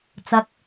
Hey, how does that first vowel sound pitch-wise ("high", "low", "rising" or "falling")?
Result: high